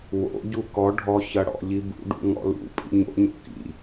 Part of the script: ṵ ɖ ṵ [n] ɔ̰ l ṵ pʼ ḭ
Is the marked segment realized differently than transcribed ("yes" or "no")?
yes